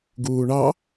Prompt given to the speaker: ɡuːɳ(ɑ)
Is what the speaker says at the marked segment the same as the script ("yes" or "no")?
yes